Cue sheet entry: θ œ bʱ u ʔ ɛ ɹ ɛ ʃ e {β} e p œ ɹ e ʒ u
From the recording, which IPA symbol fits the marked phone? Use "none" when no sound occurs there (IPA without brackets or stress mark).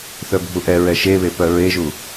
β